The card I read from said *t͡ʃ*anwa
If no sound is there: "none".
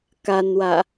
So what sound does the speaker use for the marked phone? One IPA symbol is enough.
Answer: k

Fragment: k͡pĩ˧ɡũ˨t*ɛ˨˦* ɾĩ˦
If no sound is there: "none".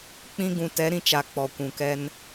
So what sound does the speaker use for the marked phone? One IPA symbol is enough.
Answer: ɛ˨˦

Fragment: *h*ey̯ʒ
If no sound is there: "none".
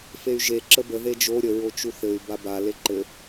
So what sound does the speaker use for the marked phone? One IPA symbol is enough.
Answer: f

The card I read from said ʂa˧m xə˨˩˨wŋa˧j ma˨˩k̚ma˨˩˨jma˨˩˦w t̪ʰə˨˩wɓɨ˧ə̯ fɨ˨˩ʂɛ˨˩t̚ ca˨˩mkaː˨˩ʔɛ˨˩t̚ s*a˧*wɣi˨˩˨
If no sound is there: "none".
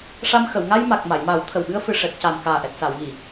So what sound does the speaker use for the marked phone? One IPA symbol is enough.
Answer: a˨˩˨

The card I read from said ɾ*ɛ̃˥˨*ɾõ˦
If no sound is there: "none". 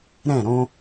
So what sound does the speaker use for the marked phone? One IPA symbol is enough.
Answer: ɛ̃˥˨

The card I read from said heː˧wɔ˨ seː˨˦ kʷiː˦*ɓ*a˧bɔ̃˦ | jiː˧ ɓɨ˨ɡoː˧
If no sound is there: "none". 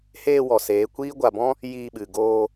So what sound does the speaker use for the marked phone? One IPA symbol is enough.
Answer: ɡʷ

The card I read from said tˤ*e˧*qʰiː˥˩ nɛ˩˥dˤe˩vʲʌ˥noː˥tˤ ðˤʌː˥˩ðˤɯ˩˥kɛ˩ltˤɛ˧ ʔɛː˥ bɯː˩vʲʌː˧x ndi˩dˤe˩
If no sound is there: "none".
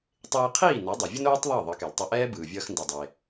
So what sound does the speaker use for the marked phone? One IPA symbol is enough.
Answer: eː˧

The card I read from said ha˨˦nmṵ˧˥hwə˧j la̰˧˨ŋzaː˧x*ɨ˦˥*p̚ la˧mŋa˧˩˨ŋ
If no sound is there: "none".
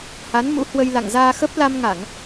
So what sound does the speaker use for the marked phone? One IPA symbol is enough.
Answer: ə˦˥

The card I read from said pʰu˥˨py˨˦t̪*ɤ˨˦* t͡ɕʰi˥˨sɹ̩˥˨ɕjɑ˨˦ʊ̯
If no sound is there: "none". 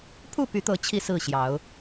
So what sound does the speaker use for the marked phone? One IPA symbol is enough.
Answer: ɤ˨˦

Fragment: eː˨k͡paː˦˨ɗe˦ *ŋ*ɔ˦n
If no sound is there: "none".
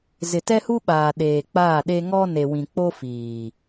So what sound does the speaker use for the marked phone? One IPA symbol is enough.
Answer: ŋ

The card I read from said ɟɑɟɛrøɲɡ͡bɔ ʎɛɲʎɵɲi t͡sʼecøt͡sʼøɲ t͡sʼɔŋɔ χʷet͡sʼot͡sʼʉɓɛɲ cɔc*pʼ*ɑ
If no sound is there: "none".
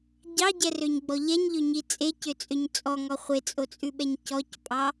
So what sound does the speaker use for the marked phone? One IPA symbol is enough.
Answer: pʼ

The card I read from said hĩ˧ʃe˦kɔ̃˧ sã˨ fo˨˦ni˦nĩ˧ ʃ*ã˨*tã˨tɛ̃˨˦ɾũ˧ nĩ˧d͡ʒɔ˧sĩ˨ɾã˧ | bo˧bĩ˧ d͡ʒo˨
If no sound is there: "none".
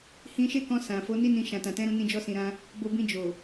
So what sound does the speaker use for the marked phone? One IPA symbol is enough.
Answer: ã˨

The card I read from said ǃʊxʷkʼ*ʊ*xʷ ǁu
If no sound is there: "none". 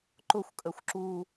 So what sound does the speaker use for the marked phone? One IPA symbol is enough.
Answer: ə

